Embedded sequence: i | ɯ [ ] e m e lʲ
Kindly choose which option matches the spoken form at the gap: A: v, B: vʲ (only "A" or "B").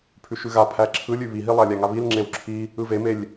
A